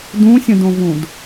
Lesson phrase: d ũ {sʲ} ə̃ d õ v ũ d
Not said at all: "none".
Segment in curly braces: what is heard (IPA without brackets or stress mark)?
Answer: sʲ